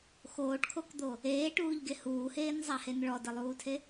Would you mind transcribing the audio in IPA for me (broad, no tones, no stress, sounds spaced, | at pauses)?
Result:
x oː ʈ kʰ o k d̪ o | eː ʈ uː ʎ ɡ e h uː h eː n zˤ a h e n ɭ ɔ d ɘ lˠ uː tʰ e